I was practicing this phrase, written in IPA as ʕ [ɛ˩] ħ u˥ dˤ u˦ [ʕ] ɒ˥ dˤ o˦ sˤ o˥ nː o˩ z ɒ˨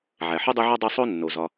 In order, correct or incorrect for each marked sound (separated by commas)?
incorrect, correct